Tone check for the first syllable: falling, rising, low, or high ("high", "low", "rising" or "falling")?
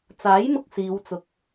rising